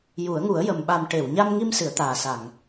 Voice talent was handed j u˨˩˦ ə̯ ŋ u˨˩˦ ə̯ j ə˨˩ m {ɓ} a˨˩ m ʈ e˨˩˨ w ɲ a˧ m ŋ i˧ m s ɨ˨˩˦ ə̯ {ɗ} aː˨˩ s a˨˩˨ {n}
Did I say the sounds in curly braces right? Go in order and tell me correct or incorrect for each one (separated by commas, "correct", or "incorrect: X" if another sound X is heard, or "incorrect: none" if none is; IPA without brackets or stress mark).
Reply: correct, incorrect: t̪, incorrect: ŋ